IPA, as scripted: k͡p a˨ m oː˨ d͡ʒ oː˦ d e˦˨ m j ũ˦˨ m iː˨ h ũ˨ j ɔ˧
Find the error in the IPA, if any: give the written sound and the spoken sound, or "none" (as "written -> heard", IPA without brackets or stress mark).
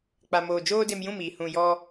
e˦˨ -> e˧